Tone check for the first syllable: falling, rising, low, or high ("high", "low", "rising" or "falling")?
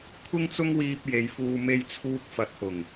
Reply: high